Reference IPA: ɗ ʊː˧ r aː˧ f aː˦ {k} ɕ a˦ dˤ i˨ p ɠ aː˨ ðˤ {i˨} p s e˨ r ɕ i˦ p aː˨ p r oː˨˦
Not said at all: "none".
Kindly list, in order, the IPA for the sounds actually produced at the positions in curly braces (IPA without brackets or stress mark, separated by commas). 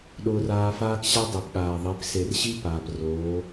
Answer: k, i˨˦